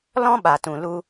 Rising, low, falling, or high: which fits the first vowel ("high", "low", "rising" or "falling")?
high